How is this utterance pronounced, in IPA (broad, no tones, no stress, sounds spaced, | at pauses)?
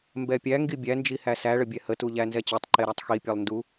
m b ɛ pʲ æ ŋ ɡ i bʲ æ n d͡ʒ i h æ s æ ɭ ə bʲ ɛ h ə t u ʎ æ n z ɛ t͡ɕ e tˤ ǃ e ɾ æ tˤ x i pʲ ɛ lˠ n d u